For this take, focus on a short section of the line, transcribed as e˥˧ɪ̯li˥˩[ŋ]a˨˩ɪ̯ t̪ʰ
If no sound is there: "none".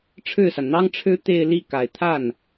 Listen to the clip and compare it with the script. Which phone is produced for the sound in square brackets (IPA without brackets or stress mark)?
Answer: k